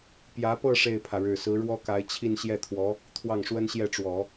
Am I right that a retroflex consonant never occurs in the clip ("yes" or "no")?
no